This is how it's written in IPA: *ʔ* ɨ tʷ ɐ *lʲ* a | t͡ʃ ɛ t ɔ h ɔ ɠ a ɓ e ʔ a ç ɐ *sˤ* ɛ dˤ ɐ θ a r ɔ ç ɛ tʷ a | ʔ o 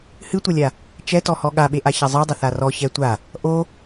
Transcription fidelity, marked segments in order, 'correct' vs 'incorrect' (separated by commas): incorrect, correct, incorrect